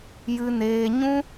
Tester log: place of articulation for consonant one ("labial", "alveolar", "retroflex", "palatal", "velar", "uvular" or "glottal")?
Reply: palatal